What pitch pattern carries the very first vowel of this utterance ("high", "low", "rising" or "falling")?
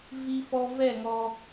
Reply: low